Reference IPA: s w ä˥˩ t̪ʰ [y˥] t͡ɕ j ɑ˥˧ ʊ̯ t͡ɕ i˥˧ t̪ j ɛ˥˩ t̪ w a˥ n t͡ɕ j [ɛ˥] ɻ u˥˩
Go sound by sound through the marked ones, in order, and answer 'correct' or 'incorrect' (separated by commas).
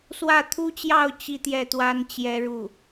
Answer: incorrect, correct